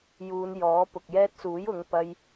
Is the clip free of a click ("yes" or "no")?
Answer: yes